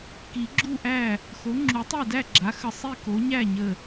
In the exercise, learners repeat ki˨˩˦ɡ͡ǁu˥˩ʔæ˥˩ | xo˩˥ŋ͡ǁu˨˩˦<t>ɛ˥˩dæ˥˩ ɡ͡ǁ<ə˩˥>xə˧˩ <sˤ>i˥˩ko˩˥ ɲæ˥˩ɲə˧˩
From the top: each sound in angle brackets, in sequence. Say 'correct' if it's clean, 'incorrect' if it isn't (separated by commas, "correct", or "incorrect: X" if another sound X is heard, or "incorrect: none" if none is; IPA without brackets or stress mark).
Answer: incorrect: tˤ, incorrect: a˩˥, correct